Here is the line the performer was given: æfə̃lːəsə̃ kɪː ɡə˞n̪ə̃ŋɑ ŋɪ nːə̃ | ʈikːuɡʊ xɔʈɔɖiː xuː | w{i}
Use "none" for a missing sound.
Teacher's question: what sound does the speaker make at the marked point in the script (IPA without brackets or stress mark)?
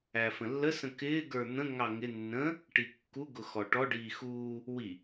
i